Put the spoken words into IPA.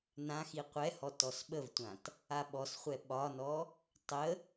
n ã x i qʷ ɛ h ɔ t ɔ s ɓ ə v tʷ ã t | a ɓ ɔ s χʷ ɛ ɓ ɒ n ɔ | tˤ ə

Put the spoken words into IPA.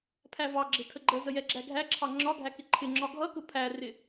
pʰ æ v ɑ ɡ͡ǁ ɪ tʰ ə ɡ͡ǃ ə z ə j ɛ ɡ͡ǁ æ ɡʱ æ ǁʰ ɑ ŋ͡ǁ ɒ ɡʱ æ k ɪ ǃʰ ɪ ŋ͡ǁ ɒ ɡʱ ʌ k ʊ pʰ æ r ɪ

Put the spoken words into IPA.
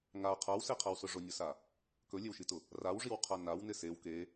ŋ a qʰ a w s e qʰ a w s ʊ ʐ ʊ nʲ ʊ s a | k ɵ lʲ e w ʃ i t ʊ | r a w ʐ i w qʰ a n a w n ɪ s e w k e

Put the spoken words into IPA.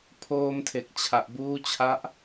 pʰ oː˧ m tʰ e˨˩ k̚ t͡ɕʰ a˨˩ ʔ b uː˦˥ t͡ɕʰ a˦˥ ʔ

